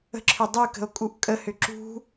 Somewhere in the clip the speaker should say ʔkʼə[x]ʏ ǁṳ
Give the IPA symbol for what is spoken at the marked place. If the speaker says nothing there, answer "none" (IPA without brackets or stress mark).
h